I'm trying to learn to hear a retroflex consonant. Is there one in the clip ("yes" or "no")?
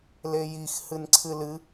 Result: no